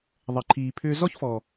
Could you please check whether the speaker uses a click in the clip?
yes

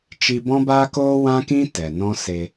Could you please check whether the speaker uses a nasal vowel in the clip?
yes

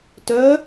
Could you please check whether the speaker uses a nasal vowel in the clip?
no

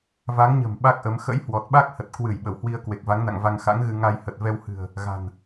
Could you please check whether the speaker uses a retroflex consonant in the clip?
no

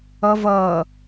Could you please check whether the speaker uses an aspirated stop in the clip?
no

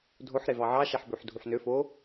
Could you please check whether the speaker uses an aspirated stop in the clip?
no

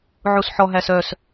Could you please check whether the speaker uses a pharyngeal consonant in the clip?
yes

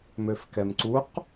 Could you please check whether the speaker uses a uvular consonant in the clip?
yes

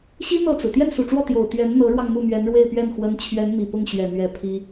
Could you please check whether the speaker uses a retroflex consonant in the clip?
yes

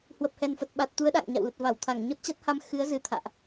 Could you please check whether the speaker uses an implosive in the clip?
yes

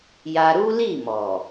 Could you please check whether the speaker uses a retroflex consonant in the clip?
no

